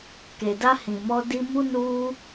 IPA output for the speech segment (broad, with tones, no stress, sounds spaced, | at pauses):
k e˨ d a˧ h ĩ˨ m ɔ˧ d i˧ m u˧ n u˦